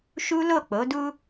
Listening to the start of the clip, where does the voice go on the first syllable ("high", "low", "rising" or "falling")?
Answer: high